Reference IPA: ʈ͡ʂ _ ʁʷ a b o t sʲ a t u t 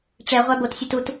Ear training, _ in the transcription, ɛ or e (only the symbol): ɛ